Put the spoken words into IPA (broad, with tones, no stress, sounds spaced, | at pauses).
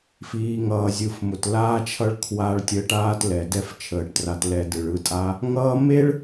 f iː˨ ŋ ʌː˨ zʲ ɯ˨ f m ʊ˨ t l aː˧ t͡ʃʰ ʌ˧ ɭ kʰ w a˧ ɭ tʲ əː˧ ʈ aː˦ t l ɛ˨ d ɛ˦ f t͡ʃʰ əː˧ ʈ t r a˧ t l ɛ˧ d ɯ˨ ɭ ɯ˧ tʼ a˦ | ŋ ʌː˧ m e˦ ɭ